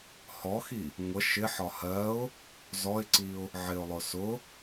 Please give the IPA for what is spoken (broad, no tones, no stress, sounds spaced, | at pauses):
h ɔ x i | ŋʷ ə ʃ ɪ ħ ɒ h ɜ ʊ̯ | z ɔ ɪ̯ ǀ i ʊ̯ | ʕ ɪ ʊ̯ lˠ ʊ s ʊ